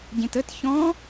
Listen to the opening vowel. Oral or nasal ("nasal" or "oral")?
nasal